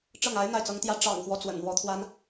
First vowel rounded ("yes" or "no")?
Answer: no